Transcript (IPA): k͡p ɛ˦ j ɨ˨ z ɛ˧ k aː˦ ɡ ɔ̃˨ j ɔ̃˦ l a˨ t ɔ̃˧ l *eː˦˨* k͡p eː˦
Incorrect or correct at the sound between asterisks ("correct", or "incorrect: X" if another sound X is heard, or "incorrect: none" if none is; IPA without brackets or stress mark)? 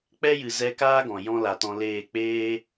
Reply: correct